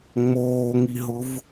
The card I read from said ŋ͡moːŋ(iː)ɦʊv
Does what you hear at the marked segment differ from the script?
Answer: yes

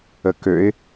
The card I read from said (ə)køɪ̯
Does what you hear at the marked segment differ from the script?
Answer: no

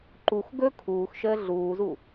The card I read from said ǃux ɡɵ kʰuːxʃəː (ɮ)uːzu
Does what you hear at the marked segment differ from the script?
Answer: no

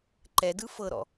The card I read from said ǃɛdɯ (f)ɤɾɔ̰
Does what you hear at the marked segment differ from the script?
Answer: no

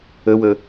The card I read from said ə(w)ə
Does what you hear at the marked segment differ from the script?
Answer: no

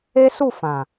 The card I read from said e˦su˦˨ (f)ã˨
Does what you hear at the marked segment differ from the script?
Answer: no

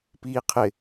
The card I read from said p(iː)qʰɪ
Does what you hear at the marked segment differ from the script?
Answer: no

